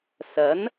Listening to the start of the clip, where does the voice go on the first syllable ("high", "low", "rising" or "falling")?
rising